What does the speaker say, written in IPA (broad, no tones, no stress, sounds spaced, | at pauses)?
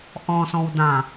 ʔ ɔ̃ s ɔ̃ w d ã